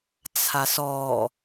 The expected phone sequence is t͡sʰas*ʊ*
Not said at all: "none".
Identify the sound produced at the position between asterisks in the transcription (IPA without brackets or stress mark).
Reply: ɔ